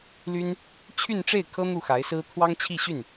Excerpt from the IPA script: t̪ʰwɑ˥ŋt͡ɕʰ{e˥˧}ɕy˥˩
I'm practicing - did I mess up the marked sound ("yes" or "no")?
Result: yes